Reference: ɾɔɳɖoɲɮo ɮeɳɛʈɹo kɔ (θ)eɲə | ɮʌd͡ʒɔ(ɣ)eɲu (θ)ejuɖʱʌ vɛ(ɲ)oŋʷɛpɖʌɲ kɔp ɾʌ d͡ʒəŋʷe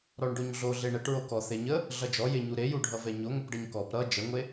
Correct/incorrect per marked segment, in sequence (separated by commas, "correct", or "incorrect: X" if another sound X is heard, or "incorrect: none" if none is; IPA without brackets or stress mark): correct, incorrect: j, incorrect: ɾ, correct